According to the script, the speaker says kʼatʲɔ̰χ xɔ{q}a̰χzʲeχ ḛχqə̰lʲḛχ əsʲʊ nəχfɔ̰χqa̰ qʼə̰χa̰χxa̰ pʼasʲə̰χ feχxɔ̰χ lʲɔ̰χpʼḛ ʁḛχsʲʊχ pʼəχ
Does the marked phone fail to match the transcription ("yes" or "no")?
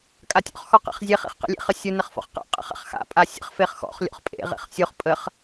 no